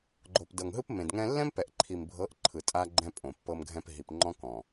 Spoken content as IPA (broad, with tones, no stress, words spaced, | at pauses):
ɡ͡ǃo˨p dɤ˨ŋɦɯ˦p mẽ˨dŋɛ̃˦ lːɛ̃˦mpɛ˨ʔǃʰi˨mbʱɤ˨˦ʔ ǃʰɯ˨tʼa˦ɡ͡ǃɛ̃˦ pʼõ˨pːɤ˦mɡʱɛ̃˦p ɦi˨pŋ͡ǃɔ̃˦kɔ̃˨